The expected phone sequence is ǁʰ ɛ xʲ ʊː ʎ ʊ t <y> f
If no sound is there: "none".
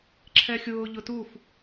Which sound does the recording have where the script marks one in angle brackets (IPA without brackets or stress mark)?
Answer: u